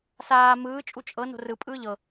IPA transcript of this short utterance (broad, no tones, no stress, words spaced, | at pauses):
saː mɯː t͡ʃʼut͡ʃʼɤ no̤rɯ pʼɯːʎɤ